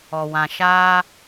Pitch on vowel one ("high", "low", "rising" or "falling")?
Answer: low